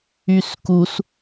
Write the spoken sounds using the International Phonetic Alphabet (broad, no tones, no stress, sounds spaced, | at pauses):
y s k u s